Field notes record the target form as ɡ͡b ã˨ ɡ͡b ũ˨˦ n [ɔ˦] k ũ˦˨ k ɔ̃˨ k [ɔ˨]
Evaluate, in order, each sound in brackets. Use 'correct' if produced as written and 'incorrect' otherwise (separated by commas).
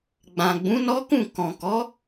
correct, incorrect